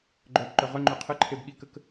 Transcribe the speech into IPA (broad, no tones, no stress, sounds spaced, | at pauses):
ɡ͡ǃ œ b ǃ œ ʁ œ ŋ͡ǃ ø qʰ ə ǃʰ e b ɠ i k ə k